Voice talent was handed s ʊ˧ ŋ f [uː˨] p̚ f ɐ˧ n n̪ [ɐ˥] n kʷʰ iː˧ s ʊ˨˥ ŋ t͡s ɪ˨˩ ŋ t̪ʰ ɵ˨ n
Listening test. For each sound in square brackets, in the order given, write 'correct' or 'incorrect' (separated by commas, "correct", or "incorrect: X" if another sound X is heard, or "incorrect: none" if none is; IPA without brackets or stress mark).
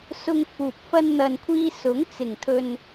correct, incorrect: ɐ˨